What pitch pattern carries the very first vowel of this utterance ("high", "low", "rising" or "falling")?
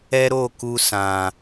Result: high